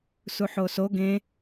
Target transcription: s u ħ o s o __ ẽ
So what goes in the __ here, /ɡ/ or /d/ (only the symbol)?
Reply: ɡ